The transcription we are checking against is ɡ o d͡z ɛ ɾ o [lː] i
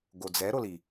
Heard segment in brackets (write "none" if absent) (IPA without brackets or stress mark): l